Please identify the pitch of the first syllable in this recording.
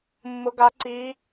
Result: rising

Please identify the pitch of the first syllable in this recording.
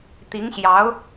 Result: rising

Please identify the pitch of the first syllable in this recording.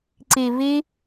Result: low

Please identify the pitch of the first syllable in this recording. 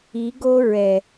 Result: rising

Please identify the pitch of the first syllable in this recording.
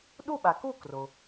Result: falling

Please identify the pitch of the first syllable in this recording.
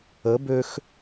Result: rising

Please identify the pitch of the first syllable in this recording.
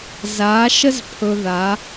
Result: rising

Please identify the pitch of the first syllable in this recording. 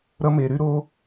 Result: high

